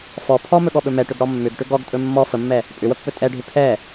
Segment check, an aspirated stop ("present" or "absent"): present